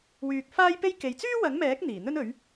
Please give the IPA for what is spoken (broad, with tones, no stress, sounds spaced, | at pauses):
w yː˧ k̚ f aː˥ j p e˥ j k e˨ j t͡s yː˥ w ɐ˨˥ ŋ m ɛː˨˥ k̚ n̪ iː˨˩ n̪ ɵ˥ n ɵ˨˥ ɥ